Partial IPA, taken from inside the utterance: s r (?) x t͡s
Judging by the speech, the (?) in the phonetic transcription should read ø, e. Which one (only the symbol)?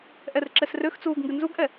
ø